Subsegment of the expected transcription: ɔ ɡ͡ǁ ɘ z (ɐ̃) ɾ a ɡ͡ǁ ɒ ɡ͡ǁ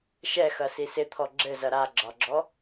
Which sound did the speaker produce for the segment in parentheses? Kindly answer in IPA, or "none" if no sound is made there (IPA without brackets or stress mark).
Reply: ɐ